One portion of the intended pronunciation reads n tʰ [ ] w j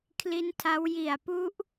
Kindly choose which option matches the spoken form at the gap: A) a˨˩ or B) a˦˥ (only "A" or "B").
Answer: B